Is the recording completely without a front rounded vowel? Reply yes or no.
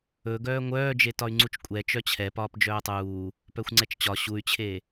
no